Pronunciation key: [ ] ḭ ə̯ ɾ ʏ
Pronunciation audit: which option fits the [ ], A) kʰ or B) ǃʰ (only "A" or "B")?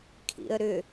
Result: A